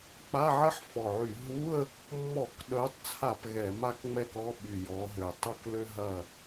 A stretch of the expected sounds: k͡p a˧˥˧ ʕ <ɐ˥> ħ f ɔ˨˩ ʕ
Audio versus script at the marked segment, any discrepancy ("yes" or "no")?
no